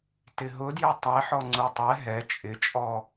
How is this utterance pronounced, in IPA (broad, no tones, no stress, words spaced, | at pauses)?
tɪɦʊdjə tˤɛħɔ ŋ͡ǀutˤɛ ɦɛ t͡ʃʼɪt͡ʃʼɔ